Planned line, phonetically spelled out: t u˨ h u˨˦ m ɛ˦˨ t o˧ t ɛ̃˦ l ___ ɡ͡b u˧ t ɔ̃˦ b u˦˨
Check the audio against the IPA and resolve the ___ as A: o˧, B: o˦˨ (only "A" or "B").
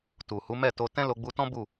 A